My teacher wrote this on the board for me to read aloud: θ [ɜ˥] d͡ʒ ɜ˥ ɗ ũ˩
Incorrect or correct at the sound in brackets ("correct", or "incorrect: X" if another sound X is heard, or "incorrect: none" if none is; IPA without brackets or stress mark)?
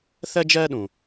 correct